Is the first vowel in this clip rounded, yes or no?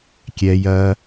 no